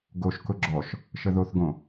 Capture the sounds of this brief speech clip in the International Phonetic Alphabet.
ɡ o ʃ k ʊ ɡ͡ǁ ɔ ʃ | ʃ ə ð o θ ɡ õ

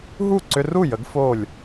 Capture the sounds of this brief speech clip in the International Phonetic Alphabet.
ɦ u˥˩ ǀ ʏ˧ r u˥˩ j ə˨˩˦ ɡ f o˥˩ lʲ

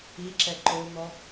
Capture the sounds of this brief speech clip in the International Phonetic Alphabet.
i ǁ ɛ ǃ o n̪ ɔ

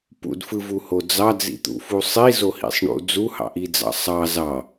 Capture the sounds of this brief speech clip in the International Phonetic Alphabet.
p ṵ d f ɯ v u h o d͡z ɑ d͡z ḭ t̪ ṵ f u sˤ i z o h ḭ sˤ ɳ ṵ d͡z u h ɑ̰ ʔ i d͡z ɑ̰ sˤ ɑ z ɑ

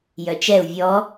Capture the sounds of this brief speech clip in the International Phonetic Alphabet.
j œ t͡ʃ ɛ u̯ vʲ ɔ

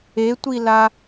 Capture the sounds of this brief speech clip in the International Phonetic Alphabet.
e tʷ i l a

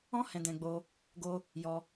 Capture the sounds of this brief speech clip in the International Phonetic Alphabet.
ɔ̃˦ h ɛ̃˧ d ɛ̃˧ ɡ͡b o˦ | ɡ o˦ | j ɔ˧

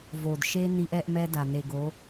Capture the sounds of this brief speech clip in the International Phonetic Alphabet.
v o˨ d ʃ e˦ n i˦ ʔ ɛ˦ ʔ m ɛ˦ d a˨ n e˨ ɡ o˨˦

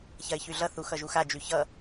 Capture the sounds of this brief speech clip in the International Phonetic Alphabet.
ç ɐ ɪ̯ ç y ɮ ʌ θ u x ʌ ʒ u x a d͡ʒ y ç ʌ

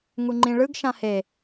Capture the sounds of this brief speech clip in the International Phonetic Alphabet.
ŋ u ŋ͡ǃ ĩ ɭ ɯ ɡ ʃ ã h e

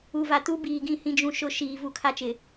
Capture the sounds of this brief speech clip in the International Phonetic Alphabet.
u˨ v a˨ t u˦ b iː˨ ɡ ĩ˦ h ĩ˦ d͡ʒ ũ˦ ʃ ʊ˦ ʃ iː˨ v u˦ kʰ a˦ t͡ʃ ɪ˨

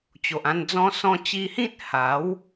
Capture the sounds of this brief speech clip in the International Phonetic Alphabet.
t͡ɕ o˨ ʔ ã˧ n d͡z ɔ̃˧ s ɔ̃˧ t͡ɕ i˧ h ĩ˦ t̚ h a˨˦ w

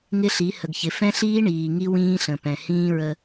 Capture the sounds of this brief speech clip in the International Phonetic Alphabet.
ŋ ɪ˦ ɬ i˨˦ h ə˨ ɡ ç ɪ˨ f ɛ̃˦ ɬ iː˦ ɳ iː˨ ŋ i˦ w ĩː˦ ɬ ə̃˨ p ɛ̃˨ h ĩː˦ ɹ ə˦

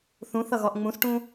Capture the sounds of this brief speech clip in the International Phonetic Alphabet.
θ ũ θ ʌ ɣ ɔ ʔ ŋ͡m ũ s ʈ ũ

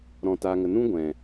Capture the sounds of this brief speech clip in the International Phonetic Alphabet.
ɾ ɔ̃˨ t a˨ ŋ ə˨ n ũ˧ ɡʷ ɛ̃˨

